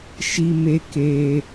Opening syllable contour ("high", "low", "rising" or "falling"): high